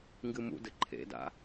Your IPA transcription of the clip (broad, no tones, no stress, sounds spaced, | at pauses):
ŋ ɡ ɨ m ṵ d ɘ ǃʰ ḛ d a̰